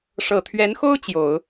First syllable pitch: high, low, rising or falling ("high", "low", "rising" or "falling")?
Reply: low